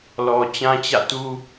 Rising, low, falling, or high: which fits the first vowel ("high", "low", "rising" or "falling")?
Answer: low